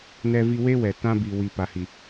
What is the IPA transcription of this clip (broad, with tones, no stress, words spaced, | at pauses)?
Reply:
nɛ˦vi˦ we˦wɛ˨tã˦ bi˨wi˨ pa˨hi˨